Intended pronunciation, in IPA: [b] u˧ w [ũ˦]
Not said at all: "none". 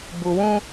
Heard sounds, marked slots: b, ũ˦

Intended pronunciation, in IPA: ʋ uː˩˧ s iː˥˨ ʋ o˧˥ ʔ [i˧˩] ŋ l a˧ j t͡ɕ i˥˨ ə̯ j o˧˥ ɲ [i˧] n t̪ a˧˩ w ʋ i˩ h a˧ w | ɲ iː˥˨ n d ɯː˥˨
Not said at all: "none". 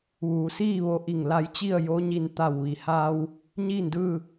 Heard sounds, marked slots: i˧˩, i˧

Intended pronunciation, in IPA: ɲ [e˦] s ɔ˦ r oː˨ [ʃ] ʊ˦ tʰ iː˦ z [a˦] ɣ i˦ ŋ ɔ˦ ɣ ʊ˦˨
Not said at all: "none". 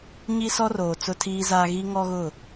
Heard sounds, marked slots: i˦, t͡s, aː˦

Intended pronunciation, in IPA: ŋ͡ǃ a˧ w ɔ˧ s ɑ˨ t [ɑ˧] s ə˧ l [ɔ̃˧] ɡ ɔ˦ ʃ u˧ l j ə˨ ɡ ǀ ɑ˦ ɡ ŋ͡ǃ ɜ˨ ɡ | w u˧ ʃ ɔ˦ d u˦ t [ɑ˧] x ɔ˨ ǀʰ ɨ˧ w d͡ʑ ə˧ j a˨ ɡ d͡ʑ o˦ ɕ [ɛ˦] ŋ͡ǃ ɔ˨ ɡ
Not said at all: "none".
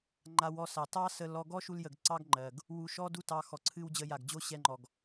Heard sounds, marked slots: ɑ˦, ɔ˧, ɑ˧, ɛ˧

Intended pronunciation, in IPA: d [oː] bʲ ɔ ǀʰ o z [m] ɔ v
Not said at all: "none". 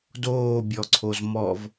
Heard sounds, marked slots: oː, m

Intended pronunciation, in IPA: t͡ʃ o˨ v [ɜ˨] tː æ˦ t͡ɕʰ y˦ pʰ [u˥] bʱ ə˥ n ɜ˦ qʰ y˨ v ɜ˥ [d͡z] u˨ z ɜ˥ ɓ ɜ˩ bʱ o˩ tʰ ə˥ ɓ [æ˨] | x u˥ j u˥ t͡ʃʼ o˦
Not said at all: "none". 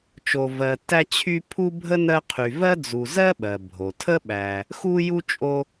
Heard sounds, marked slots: ɜ˨, u˥, d͡z, æ˨

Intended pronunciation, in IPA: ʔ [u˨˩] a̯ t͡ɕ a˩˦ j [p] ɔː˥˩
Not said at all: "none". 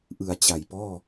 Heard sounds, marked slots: ɯ˨˩, p

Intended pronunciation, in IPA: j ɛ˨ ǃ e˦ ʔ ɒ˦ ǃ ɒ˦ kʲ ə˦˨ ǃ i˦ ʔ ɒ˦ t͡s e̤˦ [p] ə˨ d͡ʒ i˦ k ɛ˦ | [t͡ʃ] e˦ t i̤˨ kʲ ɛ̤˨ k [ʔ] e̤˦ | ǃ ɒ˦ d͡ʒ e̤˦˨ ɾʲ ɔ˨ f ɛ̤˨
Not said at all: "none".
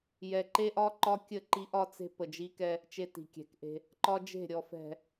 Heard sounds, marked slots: p, t͡ʃ, ʔ

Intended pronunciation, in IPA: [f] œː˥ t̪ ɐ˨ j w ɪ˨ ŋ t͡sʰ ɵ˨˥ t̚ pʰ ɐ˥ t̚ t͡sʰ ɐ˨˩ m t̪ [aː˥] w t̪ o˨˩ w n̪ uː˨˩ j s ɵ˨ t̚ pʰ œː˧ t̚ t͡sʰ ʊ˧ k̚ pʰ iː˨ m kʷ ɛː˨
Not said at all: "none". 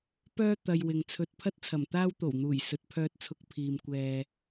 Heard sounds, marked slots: p, aː˥

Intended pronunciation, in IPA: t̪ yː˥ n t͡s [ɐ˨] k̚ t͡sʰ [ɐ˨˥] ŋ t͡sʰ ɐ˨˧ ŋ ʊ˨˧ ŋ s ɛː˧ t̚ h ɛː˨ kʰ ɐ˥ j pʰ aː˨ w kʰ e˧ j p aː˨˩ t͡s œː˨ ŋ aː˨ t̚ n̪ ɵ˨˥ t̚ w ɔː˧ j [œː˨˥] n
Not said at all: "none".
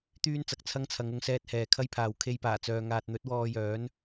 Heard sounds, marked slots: ɐ˨, ɐ˥, œː˨˥

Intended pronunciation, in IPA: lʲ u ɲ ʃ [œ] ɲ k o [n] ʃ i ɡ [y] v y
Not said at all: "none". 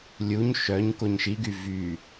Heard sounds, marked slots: œ, ɲ, y

